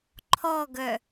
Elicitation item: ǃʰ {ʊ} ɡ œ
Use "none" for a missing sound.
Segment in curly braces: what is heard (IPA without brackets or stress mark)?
ɔ